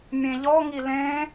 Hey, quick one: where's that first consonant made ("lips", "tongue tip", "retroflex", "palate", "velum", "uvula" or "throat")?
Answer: lips